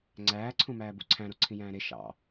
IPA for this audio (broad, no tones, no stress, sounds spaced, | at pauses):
ŋ͡ǀ æː ǀʰ ũ m æː b ṵ ǀʰ æ̃ ɾ o ǀʰ ĩ j æ̃ː ɾ e ʃ ɑ̰